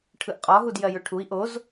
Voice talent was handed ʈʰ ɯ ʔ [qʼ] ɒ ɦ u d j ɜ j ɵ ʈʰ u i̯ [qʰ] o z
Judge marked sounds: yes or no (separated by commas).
yes, no